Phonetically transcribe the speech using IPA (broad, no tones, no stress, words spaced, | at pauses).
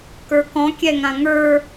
kə˞kɔ̃ kʲɛŋãŋə˞